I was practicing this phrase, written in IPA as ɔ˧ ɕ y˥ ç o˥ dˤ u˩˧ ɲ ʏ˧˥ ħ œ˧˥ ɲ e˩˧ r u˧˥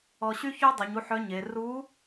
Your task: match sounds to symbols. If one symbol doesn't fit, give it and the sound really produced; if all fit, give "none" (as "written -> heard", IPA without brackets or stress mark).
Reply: ʏ˧˥ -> u˧˥